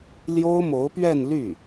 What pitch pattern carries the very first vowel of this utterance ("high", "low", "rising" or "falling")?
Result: high